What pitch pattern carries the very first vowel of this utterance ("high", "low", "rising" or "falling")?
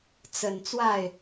low